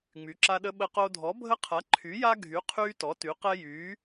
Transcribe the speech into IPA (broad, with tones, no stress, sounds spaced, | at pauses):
ŋ͡m y˨˥ ǁ a˦ ɗ ə˦ ɓ ə˦ q o˦ dʱ ɔ˨˥ bʱ ə˦ qʰ a˨˥ ǃʰ y˨˥ j a˦ ɡʱ y˨˥ qʰ yː˦ t ɔ˨˥ t y˨˥ q ɛ˦ j yː˨˥